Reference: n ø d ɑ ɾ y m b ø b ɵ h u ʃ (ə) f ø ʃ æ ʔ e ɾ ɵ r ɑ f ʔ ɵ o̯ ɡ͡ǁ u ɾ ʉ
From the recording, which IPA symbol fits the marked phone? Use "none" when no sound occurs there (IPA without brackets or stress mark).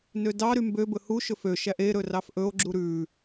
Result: ɵ